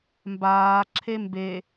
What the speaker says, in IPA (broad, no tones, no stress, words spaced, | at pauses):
mbaː ǁʰembe